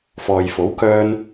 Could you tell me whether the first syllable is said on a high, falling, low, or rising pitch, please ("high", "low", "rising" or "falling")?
low